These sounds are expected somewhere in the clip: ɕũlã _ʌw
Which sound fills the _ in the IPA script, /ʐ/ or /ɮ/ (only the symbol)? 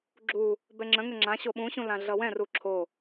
ɮ